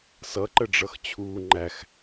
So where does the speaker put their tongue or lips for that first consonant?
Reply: tongue tip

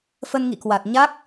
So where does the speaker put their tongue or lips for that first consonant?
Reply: lips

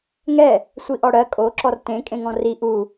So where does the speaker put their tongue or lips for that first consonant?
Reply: velum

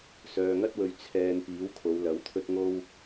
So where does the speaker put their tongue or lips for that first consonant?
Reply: tongue tip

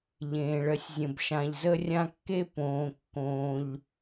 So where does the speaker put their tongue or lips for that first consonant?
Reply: palate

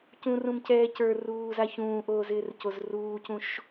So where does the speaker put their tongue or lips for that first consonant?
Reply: palate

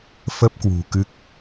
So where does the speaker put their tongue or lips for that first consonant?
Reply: lips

